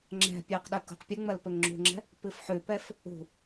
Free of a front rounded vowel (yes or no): yes